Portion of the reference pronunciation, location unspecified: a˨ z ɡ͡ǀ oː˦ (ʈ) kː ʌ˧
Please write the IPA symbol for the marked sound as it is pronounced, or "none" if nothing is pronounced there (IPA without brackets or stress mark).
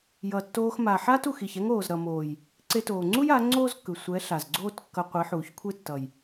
t